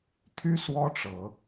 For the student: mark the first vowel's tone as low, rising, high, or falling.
high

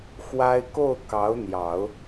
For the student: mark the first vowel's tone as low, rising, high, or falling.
high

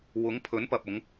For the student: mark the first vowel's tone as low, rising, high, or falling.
rising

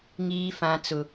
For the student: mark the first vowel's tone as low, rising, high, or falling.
high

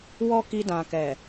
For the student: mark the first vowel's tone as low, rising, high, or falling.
high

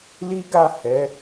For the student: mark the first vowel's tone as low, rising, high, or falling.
high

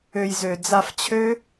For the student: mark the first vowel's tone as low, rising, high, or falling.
low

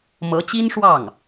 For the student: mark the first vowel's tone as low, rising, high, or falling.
rising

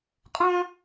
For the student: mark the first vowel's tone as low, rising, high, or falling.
high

